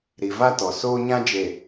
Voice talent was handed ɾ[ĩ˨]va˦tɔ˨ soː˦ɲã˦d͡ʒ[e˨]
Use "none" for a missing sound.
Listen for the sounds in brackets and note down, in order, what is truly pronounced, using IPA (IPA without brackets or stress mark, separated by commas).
i˨, e˨